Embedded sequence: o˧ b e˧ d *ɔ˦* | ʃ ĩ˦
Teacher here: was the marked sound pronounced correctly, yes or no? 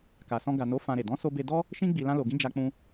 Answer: yes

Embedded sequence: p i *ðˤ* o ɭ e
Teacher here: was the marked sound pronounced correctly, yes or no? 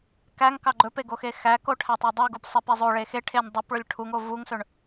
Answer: no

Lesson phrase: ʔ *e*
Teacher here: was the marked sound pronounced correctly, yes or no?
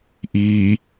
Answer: no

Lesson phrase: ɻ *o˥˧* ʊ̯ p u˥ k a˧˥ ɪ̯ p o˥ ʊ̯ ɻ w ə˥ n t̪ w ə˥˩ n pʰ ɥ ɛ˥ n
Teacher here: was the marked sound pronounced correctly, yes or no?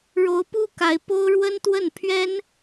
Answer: no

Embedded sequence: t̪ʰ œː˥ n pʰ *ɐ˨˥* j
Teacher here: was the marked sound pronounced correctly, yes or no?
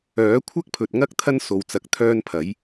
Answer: yes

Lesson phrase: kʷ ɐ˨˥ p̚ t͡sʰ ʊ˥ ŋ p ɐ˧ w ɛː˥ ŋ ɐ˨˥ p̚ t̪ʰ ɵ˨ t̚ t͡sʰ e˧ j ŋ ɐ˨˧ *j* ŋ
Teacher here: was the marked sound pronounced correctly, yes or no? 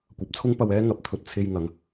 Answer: no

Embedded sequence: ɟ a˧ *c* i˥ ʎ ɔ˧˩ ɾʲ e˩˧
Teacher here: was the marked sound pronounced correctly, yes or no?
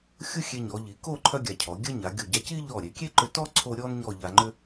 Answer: yes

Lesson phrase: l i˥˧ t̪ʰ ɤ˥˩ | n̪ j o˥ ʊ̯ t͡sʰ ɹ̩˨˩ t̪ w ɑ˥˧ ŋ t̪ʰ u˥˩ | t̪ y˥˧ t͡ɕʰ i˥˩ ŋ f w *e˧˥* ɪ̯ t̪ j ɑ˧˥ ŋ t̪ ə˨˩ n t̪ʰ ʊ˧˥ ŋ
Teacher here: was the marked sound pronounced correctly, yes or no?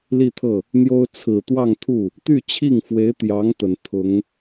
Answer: yes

